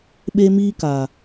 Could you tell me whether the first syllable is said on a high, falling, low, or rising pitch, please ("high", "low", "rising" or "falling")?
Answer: high